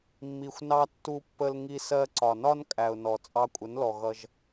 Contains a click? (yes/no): yes